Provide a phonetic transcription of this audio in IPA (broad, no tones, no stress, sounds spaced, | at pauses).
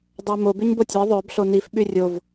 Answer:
dˤ ə ɪ̯ m o b y ɲ b o tʲ œ ɪ̯ ðˤ œ b ɬ o n i f ɓ y rʲ o v